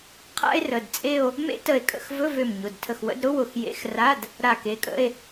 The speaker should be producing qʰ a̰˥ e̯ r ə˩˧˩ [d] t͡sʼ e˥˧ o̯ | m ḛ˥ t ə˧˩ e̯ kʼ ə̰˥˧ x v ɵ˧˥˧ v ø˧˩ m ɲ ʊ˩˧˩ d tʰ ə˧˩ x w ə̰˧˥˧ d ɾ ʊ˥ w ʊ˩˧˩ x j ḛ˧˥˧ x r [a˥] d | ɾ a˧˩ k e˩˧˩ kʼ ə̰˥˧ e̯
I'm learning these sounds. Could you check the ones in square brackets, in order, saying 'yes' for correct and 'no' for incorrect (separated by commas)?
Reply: yes, no